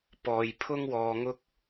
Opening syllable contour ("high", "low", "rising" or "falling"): low